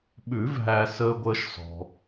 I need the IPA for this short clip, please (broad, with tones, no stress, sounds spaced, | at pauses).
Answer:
ɓ ʉ˨˩˦ v ɦ æ˨ s əː˦ ɡʷ əː˦ ʃ s ɔ̤˨